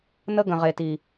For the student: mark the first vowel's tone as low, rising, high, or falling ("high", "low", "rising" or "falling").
high